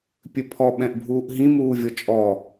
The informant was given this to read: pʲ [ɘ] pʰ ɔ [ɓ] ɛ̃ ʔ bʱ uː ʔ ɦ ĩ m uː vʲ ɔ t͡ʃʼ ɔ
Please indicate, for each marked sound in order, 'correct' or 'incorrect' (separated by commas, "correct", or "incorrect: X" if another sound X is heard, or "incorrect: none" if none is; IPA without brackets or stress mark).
correct, correct